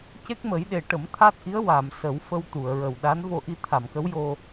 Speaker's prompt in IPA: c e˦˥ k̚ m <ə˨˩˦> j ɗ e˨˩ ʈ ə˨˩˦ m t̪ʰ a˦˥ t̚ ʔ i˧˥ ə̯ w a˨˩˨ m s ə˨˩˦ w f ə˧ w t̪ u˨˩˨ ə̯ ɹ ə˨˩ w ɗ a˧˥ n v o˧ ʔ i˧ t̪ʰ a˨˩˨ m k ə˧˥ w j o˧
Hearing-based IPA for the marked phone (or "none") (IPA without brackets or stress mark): ə˨˩˦